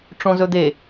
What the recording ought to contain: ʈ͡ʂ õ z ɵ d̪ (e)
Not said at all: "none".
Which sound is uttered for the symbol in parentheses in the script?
e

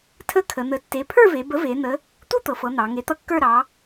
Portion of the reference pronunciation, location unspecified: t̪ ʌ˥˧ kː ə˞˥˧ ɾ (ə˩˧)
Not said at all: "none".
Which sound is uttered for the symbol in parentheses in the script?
ɑ˩˧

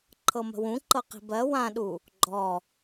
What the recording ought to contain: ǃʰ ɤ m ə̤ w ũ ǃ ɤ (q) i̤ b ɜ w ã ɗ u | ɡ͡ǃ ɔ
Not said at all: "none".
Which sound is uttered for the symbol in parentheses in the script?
q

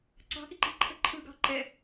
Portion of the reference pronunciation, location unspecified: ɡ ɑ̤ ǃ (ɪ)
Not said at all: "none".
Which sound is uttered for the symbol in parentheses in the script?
ɛ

